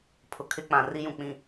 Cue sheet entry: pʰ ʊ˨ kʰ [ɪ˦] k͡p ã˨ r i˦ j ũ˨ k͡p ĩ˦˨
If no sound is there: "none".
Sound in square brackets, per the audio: ɪ˦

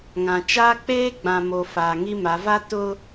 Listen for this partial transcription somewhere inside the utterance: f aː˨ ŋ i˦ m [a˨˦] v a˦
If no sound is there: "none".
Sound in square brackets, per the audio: a˨˦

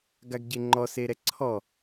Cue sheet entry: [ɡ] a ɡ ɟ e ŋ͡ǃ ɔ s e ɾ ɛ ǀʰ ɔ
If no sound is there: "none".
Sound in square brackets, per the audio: ɡ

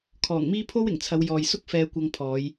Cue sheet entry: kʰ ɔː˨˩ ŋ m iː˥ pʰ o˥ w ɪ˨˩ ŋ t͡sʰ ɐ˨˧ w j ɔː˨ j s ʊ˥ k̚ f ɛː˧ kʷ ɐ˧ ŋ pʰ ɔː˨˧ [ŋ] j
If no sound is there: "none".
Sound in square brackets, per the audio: none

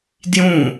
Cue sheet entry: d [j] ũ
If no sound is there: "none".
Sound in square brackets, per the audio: j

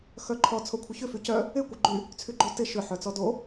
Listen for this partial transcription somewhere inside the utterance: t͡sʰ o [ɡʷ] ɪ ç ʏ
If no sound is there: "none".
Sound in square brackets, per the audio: kʷʰ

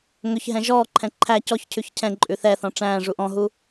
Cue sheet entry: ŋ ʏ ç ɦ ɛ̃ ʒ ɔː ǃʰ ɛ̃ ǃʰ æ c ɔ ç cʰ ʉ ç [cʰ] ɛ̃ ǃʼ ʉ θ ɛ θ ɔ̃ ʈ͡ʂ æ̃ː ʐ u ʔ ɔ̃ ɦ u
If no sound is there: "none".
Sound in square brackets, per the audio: cʰ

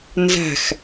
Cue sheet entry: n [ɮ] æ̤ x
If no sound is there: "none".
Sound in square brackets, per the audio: z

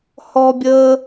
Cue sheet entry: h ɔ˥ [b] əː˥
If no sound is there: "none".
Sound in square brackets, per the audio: bʲ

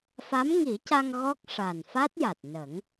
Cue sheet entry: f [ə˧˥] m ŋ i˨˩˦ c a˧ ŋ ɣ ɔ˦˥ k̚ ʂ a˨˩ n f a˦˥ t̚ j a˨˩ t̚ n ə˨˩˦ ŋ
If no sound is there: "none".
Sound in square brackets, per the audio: a˧˥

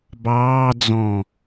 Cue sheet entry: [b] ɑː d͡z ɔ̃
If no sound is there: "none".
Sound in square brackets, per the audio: b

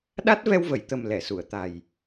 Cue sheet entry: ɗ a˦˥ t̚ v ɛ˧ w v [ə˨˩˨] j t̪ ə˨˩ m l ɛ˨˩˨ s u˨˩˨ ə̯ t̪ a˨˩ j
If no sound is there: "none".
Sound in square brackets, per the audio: ə˨˩˨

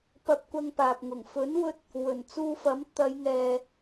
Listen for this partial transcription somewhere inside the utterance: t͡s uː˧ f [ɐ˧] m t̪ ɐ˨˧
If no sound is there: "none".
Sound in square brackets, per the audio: ɐ˨˥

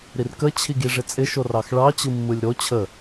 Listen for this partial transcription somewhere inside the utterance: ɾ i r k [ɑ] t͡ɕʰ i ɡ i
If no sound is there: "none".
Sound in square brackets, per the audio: ə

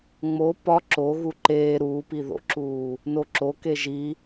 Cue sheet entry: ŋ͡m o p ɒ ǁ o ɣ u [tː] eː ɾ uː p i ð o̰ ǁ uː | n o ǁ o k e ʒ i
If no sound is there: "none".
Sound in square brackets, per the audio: ǃ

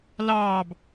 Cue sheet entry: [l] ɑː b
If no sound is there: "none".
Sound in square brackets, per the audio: l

